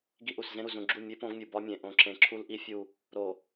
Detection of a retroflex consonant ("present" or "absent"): absent